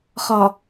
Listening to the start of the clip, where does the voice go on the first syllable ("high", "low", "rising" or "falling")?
low